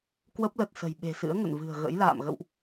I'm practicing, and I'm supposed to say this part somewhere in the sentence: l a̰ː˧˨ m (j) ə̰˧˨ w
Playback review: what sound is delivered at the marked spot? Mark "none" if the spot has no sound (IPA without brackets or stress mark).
ɣ